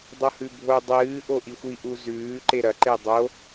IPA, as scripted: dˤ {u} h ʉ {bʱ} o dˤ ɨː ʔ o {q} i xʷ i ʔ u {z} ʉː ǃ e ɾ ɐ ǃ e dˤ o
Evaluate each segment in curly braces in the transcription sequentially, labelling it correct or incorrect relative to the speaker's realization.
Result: incorrect: o, correct, incorrect: ʔ, correct

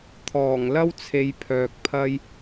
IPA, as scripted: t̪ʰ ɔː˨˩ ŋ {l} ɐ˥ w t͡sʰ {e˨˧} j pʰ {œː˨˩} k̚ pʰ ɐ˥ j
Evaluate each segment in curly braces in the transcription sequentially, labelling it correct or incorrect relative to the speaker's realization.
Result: correct, correct, incorrect: œː˨

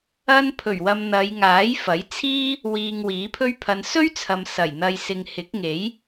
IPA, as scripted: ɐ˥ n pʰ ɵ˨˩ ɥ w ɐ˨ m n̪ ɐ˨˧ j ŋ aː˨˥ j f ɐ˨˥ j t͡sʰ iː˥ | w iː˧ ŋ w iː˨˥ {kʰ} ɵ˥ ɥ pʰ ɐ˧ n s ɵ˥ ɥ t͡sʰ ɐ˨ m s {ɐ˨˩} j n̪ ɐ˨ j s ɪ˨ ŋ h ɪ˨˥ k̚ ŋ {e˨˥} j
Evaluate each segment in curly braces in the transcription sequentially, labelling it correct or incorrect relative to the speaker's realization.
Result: incorrect: pʰ, correct, correct

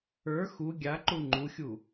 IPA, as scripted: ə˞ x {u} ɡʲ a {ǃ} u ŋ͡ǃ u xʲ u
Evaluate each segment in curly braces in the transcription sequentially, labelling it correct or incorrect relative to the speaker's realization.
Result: correct, correct

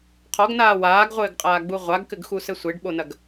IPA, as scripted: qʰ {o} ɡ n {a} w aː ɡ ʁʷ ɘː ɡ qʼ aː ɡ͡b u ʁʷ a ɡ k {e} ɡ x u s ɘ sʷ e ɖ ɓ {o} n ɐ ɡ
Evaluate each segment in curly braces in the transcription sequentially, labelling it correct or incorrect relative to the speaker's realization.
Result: incorrect: ɔ, incorrect: aː, incorrect: ɘ, correct

